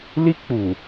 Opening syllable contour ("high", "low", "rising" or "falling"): high